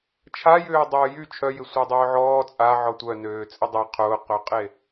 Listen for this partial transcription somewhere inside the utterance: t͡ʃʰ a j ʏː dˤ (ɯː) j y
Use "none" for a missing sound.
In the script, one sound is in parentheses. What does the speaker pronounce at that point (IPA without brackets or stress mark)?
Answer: ʊː